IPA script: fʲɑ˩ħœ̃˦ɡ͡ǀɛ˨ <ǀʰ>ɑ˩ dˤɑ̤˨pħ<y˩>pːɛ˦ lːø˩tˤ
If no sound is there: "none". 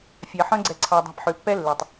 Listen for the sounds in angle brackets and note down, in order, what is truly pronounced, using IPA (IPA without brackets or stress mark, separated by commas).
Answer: ǀʰ, ø˩